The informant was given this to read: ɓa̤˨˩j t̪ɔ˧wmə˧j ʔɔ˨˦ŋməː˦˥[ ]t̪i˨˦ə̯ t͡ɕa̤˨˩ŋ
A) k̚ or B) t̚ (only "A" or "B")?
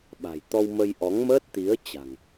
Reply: B